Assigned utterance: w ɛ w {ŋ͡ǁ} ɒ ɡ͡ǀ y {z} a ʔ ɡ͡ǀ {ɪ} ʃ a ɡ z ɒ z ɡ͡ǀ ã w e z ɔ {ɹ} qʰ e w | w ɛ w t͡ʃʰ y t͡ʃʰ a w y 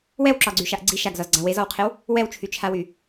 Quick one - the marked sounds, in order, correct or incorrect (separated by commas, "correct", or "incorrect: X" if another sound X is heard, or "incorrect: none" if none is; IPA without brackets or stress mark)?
incorrect: ǁ, incorrect: ʃ, incorrect: i, incorrect: w